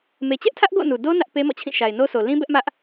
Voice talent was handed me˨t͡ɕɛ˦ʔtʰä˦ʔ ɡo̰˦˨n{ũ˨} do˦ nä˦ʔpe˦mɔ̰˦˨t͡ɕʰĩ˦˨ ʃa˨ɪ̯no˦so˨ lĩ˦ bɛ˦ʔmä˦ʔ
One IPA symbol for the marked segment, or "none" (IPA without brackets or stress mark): u˨